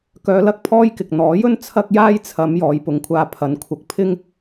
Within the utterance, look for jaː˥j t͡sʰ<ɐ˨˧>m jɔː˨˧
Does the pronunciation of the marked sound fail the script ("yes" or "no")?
no